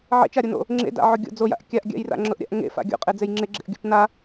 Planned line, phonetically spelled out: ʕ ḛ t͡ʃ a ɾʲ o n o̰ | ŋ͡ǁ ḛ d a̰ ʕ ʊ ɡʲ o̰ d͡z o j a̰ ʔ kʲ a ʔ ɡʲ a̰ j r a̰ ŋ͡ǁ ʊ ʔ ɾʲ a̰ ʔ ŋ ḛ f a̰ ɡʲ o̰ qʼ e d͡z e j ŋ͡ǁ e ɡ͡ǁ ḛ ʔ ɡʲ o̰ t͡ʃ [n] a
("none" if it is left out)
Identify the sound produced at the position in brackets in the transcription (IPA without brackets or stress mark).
n